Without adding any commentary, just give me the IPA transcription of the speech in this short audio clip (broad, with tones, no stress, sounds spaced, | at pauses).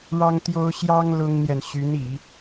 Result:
ɻ ɑ˥ ŋ t̪ j o˥ ʊ̯ ɕ j ɑ˥ ŋ l ʊ˥ ŋ n̪ j ɛ˨ n ɕ y˧˥ n i˨˩˦